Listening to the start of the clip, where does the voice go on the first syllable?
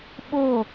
falling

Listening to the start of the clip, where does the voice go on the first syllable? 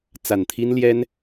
low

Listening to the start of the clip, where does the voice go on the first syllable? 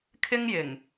high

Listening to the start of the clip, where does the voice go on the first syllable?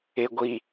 low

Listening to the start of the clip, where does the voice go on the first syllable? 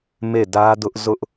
falling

